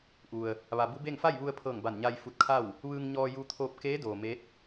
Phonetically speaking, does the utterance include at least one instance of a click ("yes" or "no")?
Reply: no